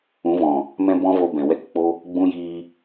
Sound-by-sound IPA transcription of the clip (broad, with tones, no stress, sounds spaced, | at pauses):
ũ˨˦ v ɔ̃˨ | m ɛ̃˦ b ɔ̃˦ v o˧ b ɛ̃˨ w ɛ˦ k k͡p o˦ | ɡ͡b ũ˦ j iː˧